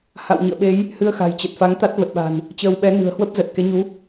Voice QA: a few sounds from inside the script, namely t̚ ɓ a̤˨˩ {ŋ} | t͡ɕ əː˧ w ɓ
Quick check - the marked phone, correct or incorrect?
incorrect